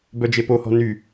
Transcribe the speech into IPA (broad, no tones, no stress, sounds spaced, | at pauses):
b œ d͡ʒ e p o h ɔ̤ n y